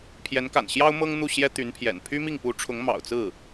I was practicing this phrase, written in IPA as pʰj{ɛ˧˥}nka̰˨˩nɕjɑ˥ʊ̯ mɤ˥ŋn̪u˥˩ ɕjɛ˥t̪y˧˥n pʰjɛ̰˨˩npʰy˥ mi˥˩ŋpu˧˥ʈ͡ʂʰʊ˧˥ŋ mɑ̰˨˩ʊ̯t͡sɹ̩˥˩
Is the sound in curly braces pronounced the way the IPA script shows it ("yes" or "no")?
yes